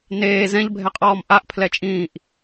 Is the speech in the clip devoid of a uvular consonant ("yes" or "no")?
no